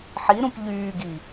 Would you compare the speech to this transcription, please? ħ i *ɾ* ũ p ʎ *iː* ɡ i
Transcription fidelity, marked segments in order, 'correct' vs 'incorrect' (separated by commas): correct, incorrect